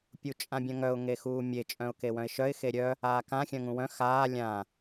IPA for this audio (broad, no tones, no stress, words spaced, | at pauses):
pʲut͡ʃʼãbʲœ̃ŋœʊ̯ ŋexuːmʲe t͡ʃʼœ̃ʊ̯kewœ̃ɪ̯ʃœɪ̯ xeɾʲœ | aːkã xʲœ̃ŋũwœ̃ xaː lʲã